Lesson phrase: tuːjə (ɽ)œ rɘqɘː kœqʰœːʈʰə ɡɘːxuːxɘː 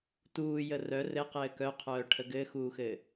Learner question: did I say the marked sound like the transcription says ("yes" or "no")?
no